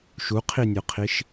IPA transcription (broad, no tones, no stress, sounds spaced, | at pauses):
ʃ u qʰ i nʲ œ qʰ i ʃ